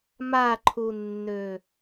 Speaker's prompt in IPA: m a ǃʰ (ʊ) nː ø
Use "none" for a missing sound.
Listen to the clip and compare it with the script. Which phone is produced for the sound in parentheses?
u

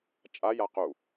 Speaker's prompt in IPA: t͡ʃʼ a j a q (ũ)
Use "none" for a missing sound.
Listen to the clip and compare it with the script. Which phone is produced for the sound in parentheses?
u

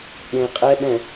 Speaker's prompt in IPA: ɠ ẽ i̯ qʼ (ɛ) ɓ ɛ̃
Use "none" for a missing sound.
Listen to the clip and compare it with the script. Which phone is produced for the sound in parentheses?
ɛ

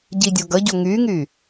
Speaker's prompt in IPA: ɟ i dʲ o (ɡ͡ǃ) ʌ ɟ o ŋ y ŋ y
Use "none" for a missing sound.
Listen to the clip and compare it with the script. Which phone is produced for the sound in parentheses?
ɡ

